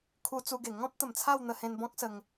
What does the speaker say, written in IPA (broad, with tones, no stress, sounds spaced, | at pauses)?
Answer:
kʰ u˧ t͡s u˧ ɡ e˨˩ ŋ ɔ̃˦ p̚ t̪ ə˨˩ m t͡sʰ a˥˧ w n̪ ə˧ h ẽ˧ n b ɔ̃˦ k̚ s ə˧ ŋ